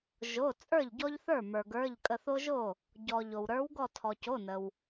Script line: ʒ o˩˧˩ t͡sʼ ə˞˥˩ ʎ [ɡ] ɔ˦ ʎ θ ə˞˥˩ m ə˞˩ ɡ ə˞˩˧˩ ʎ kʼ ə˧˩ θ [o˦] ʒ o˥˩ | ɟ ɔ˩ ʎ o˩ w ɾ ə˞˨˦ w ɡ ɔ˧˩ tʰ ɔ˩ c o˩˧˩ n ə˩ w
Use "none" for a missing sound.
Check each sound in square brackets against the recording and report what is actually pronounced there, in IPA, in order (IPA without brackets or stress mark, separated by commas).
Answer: ɟ, o˦